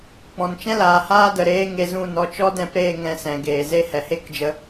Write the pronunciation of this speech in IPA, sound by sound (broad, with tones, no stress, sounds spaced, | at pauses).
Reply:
k͡p ɔ̃˨ n t͡ʃ ɛ̃˦ l aː˨ h aː˦ d ə˨ ɾ eː˦ ŋ e˧ z ũ˦˨ n ɔ˧ t͡ʃ ɔ˦ d ɛ̃˧ p ɾ eː˦˨ ŋ ɛ̃˧ s ɛ̃˨ ɡ eː˨ z e˦ h ɛ˨ h e˦˨ k d͡ʒ ə˧